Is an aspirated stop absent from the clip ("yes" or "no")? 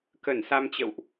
yes